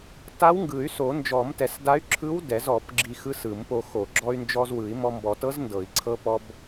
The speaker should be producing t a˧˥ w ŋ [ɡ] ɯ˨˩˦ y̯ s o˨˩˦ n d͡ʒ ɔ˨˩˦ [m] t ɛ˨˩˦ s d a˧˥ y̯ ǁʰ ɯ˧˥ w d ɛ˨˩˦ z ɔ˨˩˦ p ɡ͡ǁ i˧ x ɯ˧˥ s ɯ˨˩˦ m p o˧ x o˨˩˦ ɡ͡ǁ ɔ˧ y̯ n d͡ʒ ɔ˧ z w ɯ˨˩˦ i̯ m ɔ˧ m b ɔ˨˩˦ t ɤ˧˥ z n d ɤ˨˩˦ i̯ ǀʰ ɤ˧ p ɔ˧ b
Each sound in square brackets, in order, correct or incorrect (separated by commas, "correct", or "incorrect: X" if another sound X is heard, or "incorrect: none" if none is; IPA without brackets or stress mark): correct, correct